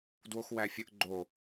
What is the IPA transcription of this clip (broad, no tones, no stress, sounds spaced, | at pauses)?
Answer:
d w o x w æ fʲ ə ʔ ɡ͡ǃ o